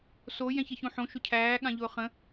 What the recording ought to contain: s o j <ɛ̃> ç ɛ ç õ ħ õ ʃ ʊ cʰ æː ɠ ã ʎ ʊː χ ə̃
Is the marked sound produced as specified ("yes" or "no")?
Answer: yes